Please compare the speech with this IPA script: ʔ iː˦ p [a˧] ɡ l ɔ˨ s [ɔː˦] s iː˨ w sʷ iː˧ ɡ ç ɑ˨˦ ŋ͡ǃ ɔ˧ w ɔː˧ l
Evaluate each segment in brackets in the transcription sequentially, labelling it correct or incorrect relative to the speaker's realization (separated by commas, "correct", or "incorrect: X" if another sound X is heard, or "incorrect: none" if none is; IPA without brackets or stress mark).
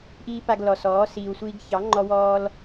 correct, incorrect: ɔː˨˦